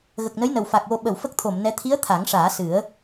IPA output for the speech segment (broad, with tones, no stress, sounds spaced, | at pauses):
ɣ ə˨˩ k̚ n ə˧˥ j n ə˨˩ w f a˨˩ k̚ w o˧ ɓ ə˨˩˨ w f ə˦˥ k̚ t̪ʰ o˨˩˨ m n ɛ˧˥ t̪ʰ i˧˥ ə̯ t̪ʰ a˨˩˦ ŋ ʂ aː˨˩˦ s ɨ˨˩˦ ə̯